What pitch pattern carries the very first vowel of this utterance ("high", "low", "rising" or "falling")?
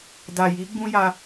low